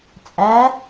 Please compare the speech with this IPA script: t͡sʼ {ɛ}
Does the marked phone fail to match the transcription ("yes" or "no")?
yes